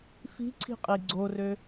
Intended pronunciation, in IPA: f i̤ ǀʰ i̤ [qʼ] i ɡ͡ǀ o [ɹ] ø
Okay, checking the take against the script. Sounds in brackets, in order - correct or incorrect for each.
correct, incorrect: r

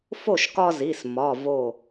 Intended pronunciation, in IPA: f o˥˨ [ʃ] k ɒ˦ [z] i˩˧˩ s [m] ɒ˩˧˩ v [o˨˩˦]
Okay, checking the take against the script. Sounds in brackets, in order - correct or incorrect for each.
correct, correct, correct, incorrect: o˧˩

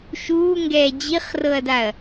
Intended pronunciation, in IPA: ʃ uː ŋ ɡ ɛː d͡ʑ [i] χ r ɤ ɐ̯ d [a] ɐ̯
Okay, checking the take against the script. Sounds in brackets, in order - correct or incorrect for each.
correct, correct

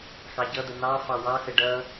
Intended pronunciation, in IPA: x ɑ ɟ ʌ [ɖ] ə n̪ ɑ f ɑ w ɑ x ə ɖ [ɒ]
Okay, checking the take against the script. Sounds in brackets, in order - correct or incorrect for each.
incorrect: d̪, incorrect: ʌ

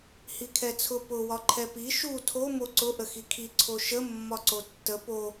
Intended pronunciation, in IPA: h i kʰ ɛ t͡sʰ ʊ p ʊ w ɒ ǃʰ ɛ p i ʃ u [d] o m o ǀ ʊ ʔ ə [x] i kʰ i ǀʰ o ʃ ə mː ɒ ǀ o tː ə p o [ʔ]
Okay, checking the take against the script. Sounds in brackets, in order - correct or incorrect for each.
incorrect: tʰ, correct, incorrect: none

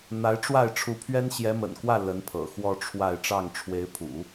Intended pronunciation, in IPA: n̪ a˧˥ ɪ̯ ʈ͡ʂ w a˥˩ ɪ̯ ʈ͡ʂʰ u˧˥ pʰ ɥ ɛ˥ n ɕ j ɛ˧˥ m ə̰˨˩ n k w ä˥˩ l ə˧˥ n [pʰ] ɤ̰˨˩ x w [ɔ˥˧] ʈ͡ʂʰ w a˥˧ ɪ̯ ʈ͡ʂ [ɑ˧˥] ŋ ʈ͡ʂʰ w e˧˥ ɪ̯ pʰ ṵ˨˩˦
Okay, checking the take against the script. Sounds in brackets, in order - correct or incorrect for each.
correct, correct, incorrect: ɑ˥˩

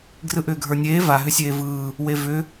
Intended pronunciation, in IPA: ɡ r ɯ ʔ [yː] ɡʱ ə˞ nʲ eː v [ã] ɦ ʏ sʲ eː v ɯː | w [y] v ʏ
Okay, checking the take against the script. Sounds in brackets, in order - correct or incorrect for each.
incorrect: ʏː, incorrect: a, incorrect: e

